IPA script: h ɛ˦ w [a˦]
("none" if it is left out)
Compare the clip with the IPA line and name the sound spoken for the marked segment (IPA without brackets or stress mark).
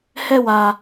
a˦